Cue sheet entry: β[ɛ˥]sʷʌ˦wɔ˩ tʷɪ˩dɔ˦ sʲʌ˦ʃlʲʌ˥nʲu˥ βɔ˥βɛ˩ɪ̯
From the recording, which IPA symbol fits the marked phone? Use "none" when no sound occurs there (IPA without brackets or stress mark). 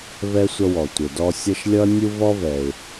ɛ˥